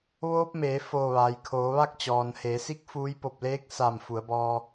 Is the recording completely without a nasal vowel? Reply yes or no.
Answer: yes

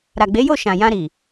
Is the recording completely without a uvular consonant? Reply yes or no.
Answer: yes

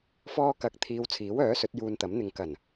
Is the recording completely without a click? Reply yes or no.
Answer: yes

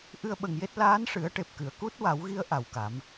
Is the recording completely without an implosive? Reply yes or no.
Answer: no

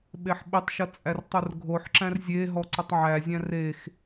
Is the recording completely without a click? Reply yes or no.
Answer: no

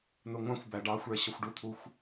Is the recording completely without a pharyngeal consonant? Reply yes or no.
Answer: yes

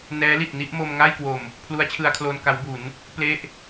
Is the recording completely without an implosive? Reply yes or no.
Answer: yes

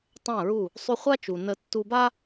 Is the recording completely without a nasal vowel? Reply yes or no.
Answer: no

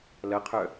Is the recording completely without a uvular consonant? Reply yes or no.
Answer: no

